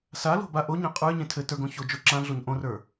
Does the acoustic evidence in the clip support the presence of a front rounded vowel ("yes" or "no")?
no